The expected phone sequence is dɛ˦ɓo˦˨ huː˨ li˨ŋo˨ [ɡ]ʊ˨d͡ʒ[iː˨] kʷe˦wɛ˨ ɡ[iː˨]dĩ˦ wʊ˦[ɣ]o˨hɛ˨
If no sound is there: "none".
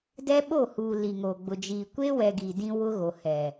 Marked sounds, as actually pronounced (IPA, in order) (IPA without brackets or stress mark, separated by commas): ɡ͡b, iː˨, i˨, ɣ